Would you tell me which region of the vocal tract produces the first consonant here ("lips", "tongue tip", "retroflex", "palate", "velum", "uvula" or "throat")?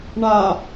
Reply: retroflex